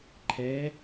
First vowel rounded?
no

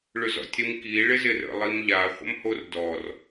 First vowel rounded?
yes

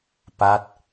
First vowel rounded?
no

